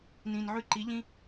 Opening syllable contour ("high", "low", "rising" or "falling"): low